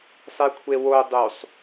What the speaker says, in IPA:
sˤ e kʷʰ e w o dˤ u sˤ

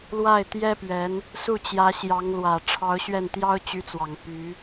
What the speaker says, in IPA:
l w a˥˩ ɪ̯ t̪ j ɛ˥ p ɥ ɛ˧˥ n | s u˥˩ t͡ɕ j ä˧˥ ɕ j ɑ˧˥ ŋ l w ä˨˩ ʈ͡ʂʰ ɑ˧˥ ʊ̯ ɕ ɥ ɛ˥˩ n t̪ j ɑ˥ ʊ̯ t͡ɕ y˧˥ t͡s w ɑ˨˩ ŋ p y˧˥

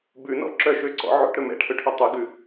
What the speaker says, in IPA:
b ʉ n ɔ̰ ǁ œ ʃ ø ǀ ɔ̰ ʕ o̰ ʈ ɾ ɵ m ɛ̰ ʈʰ ɵ ʈʰ ø tˤ ʉ ɡ ʉ

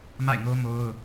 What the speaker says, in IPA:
m a̰˦˨ ɪ̯ ŋ o˦ m o˦ ʊ̯

